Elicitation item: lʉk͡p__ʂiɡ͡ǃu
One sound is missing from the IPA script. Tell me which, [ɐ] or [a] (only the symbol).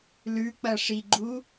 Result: ɐ